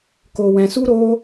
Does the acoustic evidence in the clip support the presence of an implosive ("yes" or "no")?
no